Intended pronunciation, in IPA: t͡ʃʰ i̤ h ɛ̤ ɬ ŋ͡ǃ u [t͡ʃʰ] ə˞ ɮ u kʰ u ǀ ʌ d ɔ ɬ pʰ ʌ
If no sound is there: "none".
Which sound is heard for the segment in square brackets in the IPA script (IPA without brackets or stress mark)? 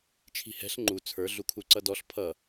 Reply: t͡sʰ